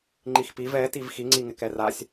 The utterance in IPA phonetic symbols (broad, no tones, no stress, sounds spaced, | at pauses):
ŋ͡ǃ i x p i v ɛ t i v x i ŋ͡ǀ i ŋ ɪ k ɛ r a sʲ